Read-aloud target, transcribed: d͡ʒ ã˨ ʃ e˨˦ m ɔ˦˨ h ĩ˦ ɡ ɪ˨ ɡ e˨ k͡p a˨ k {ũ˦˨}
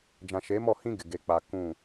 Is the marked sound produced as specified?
yes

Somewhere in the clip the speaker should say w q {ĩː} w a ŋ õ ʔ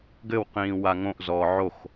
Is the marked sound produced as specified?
yes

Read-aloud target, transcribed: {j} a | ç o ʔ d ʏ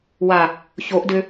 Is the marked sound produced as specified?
no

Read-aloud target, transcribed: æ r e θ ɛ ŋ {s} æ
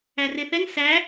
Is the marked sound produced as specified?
yes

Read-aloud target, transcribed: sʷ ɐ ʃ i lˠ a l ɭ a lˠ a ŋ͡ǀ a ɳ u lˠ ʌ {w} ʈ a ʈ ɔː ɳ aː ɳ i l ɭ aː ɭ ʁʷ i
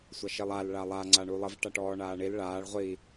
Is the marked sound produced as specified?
no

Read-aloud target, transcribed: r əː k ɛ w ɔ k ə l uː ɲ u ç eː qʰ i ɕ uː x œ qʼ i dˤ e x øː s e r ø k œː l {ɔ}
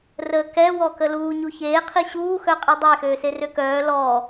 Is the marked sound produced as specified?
yes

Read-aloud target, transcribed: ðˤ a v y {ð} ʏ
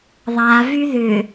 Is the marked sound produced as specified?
yes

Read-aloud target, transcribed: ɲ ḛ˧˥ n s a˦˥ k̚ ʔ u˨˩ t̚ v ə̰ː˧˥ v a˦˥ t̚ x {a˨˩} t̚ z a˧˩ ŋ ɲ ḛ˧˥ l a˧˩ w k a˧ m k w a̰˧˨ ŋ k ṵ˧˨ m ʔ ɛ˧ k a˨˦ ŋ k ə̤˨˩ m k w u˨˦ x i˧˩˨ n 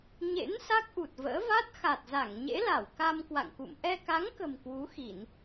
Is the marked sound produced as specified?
yes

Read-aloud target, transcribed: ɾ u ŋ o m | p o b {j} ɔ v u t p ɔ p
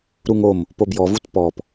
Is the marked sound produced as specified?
yes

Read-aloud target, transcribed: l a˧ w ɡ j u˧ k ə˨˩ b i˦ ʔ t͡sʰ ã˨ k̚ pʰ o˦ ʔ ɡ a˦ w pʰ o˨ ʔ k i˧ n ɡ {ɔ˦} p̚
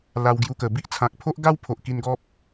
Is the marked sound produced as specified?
yes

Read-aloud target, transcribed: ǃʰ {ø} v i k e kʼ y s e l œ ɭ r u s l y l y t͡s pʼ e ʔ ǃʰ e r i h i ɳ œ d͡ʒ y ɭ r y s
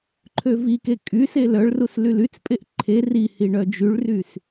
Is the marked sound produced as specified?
yes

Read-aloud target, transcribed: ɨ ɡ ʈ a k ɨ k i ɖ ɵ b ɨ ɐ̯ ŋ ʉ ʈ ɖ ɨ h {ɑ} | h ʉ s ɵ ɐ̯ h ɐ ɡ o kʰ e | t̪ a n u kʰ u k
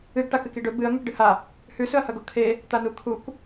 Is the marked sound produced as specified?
no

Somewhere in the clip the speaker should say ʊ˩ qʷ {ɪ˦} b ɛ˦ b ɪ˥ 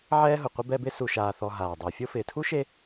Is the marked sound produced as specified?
no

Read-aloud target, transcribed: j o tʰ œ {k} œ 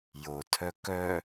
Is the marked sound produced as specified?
yes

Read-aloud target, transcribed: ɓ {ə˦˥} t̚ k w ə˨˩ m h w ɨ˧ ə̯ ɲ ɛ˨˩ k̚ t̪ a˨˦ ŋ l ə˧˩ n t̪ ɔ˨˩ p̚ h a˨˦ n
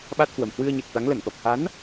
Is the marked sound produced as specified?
no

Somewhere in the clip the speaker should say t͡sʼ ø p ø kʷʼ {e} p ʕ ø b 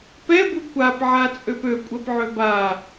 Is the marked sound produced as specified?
no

